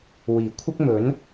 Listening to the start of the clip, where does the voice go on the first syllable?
low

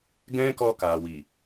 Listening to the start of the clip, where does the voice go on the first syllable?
high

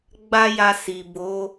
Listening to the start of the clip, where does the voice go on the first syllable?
high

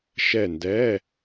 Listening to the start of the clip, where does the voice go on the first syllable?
falling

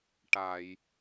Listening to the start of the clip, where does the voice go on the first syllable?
low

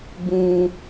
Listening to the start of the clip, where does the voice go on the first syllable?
low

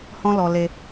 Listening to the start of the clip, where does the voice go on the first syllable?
high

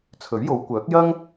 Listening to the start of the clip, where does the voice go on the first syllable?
rising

